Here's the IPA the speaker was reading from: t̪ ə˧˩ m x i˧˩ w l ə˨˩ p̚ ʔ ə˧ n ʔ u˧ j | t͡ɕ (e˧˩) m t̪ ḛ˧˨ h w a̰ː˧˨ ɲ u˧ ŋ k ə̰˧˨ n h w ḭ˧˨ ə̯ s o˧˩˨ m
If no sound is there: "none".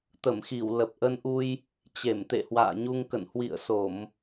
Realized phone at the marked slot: e˧˩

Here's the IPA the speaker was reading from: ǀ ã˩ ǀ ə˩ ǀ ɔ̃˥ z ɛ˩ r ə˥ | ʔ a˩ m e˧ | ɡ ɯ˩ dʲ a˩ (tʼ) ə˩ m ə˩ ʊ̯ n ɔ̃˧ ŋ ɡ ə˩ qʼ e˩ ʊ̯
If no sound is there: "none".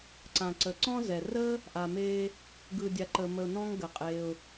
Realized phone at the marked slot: ǃ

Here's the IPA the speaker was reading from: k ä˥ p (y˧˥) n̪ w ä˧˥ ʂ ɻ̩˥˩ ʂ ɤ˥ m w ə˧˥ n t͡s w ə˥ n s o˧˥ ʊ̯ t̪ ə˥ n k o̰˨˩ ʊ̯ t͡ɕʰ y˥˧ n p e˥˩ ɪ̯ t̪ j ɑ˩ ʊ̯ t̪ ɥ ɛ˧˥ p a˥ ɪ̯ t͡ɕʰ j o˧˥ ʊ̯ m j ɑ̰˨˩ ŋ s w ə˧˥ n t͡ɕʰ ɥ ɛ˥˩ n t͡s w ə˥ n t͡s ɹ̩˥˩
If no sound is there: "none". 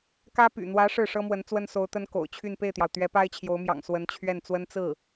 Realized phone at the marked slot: y̰˨˩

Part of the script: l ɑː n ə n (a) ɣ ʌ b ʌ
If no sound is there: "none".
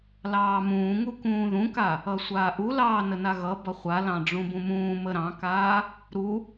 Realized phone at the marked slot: a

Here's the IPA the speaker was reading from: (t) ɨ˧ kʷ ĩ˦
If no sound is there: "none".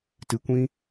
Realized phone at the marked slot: t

